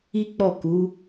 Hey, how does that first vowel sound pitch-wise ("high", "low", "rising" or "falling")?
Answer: high